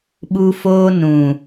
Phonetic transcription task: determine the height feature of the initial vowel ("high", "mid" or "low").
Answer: high